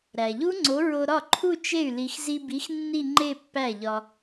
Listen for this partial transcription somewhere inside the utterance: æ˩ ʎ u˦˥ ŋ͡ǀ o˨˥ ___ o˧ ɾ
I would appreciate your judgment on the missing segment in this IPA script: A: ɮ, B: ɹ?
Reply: B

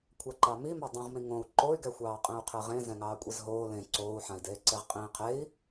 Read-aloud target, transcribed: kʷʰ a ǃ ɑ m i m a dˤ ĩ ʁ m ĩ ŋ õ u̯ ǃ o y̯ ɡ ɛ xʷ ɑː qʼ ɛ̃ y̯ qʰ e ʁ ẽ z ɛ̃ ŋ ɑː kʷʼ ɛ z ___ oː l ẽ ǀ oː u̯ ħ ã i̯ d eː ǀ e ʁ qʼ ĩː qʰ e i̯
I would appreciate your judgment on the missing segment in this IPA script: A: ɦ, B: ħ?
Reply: A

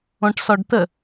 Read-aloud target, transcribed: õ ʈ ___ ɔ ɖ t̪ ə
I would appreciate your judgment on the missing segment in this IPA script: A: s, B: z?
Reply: A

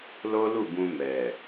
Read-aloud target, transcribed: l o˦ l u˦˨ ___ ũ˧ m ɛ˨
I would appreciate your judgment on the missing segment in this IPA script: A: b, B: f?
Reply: A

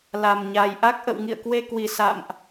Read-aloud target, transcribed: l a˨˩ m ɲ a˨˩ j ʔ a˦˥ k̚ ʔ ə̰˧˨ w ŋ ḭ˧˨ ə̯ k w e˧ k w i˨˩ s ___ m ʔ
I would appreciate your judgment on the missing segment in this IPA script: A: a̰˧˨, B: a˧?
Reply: A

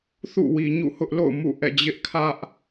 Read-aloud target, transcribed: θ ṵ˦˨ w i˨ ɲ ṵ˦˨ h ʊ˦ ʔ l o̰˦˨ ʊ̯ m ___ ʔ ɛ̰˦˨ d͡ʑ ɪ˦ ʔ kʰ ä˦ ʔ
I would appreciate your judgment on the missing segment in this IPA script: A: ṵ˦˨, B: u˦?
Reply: A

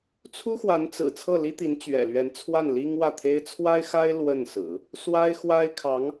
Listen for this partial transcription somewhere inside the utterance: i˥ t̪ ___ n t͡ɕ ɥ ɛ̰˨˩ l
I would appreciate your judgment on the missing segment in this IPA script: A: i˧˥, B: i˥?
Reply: A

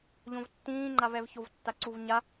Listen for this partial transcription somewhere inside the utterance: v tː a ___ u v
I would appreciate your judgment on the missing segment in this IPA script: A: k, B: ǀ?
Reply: B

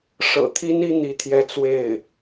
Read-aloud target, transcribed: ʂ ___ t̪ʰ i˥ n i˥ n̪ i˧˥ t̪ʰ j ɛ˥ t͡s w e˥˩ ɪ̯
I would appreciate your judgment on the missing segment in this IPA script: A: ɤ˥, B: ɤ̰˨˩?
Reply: B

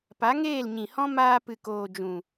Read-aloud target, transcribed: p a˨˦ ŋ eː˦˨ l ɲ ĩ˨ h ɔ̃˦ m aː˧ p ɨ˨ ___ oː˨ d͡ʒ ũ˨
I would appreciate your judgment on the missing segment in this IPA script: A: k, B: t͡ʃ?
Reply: A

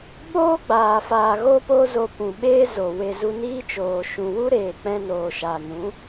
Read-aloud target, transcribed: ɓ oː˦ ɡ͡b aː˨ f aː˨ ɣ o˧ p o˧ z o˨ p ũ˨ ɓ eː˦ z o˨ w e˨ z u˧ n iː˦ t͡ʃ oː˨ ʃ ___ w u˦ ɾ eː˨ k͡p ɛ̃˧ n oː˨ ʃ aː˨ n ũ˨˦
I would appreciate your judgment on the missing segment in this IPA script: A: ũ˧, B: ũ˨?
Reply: B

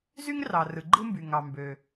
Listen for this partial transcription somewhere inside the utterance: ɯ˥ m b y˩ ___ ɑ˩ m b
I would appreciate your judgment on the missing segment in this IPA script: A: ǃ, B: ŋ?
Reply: B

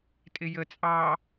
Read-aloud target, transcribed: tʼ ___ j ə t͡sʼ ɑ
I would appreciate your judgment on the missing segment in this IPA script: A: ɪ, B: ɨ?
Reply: A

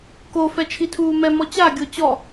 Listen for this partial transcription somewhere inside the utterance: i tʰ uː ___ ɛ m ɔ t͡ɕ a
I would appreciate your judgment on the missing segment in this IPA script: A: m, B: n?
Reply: A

